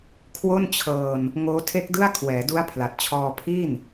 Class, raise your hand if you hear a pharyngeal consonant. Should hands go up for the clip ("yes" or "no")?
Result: no